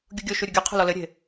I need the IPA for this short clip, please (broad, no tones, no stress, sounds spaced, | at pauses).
ɡʲ u ɡʲ o ʃ u ɾʲ u ɡʲ ɨ qʰ o̤ l ɔ l ɘ ɾʲ e̤